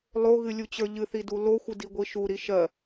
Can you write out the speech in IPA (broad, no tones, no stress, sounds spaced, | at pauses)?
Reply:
lˠ o ɣ ɨ lʲ u t͡ɕ ə˞ ʎ ɨ θ i d u l o xʷ ɨ d i ɡʷ i ʃ u ɾ i ʃ ɜ